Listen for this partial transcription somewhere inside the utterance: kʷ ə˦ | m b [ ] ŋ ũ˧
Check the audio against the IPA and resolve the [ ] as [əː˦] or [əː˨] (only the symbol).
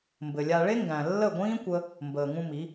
əː˨